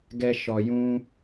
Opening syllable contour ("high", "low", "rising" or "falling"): high